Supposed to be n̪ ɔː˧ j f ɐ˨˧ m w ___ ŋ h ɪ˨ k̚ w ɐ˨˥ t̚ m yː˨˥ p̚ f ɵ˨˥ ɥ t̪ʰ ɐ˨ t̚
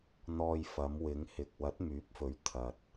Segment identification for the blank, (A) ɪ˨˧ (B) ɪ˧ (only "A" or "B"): A